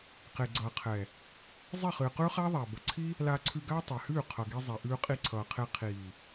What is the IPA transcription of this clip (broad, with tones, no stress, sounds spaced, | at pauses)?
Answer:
q e˨ ɡ͡ǀ ʌː˨ qʰ ɛ˨ | zˤ i˦˨ χ ɨː˨ q ʉː˦ χ aː˦ ðˤ aː˨ b ʌ˨ ǀʰ i˦ | l aː˧ ǀʰ ʉ˧ ɡ aː˦ tˤ ɛ˨ h ʉː˦˨ qʰ ʌ˨ ɡ i˧ zˤ ɛ˨ ʔ ʉː˧ qʼ i˧ ǀʰ ʌː˨ qʰ e˧ qʰ iː˨